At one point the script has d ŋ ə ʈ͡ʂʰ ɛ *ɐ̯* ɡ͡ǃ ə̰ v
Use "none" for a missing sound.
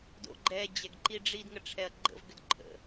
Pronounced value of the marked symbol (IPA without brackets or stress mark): ɐ̯